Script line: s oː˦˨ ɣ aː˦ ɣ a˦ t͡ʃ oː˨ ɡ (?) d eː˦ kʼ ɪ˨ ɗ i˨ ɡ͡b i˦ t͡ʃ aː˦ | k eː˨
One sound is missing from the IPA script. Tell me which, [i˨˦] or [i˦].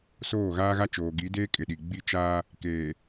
i˨˦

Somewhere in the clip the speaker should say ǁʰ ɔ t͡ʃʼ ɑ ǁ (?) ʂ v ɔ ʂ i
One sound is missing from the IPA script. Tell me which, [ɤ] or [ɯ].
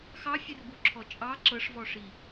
ɤ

